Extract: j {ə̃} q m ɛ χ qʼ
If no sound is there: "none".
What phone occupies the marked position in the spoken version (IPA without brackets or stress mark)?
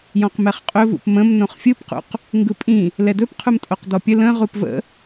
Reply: ɔ̃